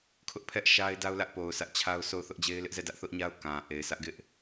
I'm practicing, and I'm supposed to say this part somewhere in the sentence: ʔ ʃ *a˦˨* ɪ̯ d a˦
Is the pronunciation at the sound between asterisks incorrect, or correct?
incorrect: a˦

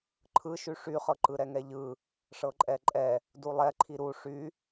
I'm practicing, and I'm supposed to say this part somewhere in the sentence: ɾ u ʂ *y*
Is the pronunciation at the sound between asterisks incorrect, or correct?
correct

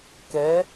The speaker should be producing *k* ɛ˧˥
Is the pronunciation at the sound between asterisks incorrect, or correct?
correct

